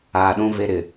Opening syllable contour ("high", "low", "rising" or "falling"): low